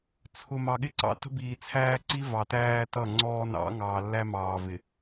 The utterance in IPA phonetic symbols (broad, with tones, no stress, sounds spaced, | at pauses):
t͡sʰ ʊ˨ m ɑ˨ ɠ ɪ˦ ǀ ɑ̰˦ t ə̤˦ b iː˨ t͡sʰ æː˦ ǀ i˦ v ɑ˨ t æː˦ t ʌ˦˨ ŋ͡ǀ ɔː˦ n ɑ̰˨˦ ŋ ɑː˨ lː æ˦ m ɑː˨ v ɪ˨